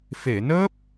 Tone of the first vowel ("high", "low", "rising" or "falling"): low